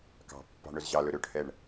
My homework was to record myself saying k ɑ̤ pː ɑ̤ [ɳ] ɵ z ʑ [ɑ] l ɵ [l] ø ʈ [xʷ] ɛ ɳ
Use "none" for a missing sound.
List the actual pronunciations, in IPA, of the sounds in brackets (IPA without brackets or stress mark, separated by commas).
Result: ɳ, ɑ, ɾ, h